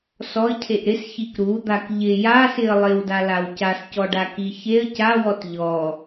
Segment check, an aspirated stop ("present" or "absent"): present